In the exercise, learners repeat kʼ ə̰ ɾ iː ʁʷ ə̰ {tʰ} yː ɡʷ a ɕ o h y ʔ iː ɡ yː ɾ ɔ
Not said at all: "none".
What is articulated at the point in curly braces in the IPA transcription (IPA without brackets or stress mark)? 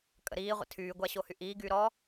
tʰ